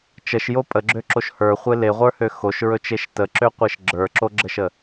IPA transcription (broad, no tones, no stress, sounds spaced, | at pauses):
t͡ʃ ə ʃ j o pʼ ə ɡ͡ǁ ø ǁ o ʃ h ə˞ χʷ e l e ʁʷ ə˞ h ø x o ʃ ɹ ɵ t͡ʃ e ʃ t ə ǁ ø qʷ e ʃ ɡ͡ǁ ə˞ ǁ o ɡ͡ǁ ə ʃ ə